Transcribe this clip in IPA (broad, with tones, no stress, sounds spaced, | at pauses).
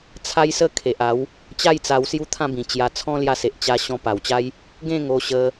t͡sʰ a˦ j s ə˥˧ kʰ e˨ ʔ a˨˦ w | t͡ɕ a˥˧ j t͡s a˧ w s j u˦ t̪ʰ ã˥˧ b ĩ˨˩ t͡ɕ j a˧ t͡sʰ ɔ̃˦ l j a˧ s e˨ ʔ t͡ɕ a˧ ɕ ɔ̃˧ p a˨˩ w t͡ɕ a˦ j | ɡ ẽ˥˧ ŋ o˧ ɕ ə˧